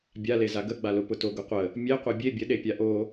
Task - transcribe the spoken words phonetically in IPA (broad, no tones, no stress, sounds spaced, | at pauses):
bʲ a l e z a ɡ ə ɡ͡b a l ʊ p ʊ t o ɡ ʊ qʷ ə | mʲ e qʷ e bʲ e bʲ ə ɗ e pʲ a ʔ o